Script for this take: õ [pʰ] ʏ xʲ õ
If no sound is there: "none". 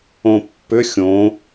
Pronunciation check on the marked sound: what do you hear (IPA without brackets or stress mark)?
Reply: pː